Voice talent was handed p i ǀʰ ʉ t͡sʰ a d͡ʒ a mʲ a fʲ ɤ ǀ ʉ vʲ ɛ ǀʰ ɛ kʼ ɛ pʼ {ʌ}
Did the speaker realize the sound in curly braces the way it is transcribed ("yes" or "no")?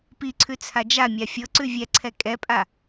no